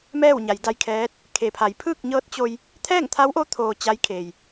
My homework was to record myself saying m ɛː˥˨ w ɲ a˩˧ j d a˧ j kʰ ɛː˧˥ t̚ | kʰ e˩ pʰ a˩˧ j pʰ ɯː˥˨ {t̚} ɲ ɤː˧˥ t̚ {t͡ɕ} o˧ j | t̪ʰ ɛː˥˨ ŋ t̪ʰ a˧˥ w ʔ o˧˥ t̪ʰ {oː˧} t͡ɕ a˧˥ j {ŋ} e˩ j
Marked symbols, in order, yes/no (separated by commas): no, yes, yes, no